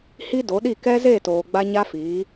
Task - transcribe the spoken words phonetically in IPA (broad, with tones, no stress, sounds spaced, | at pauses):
h i˦ d o˨˦ ɗ i˦˨ k ɛ˦ z e˦˨ t oː˨ ɡ͡b a˦ ɲ a˦ f iː˨˦